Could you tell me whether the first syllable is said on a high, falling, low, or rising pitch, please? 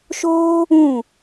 high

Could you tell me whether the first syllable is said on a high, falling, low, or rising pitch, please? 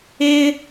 high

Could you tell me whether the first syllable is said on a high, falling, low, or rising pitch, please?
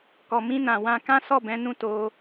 low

